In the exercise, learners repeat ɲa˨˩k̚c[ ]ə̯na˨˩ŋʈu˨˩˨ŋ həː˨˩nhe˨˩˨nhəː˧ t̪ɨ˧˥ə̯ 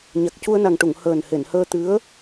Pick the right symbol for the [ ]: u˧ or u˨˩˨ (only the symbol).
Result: u˧